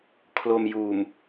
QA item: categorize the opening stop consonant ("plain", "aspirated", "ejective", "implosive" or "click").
aspirated